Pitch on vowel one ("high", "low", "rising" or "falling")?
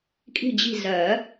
falling